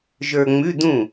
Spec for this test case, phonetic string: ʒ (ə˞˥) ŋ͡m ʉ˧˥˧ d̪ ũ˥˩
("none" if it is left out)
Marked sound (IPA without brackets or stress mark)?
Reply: ə˞˧